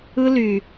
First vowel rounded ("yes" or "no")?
no